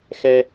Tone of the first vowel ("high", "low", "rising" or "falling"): high